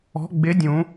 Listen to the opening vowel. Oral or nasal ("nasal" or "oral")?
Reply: oral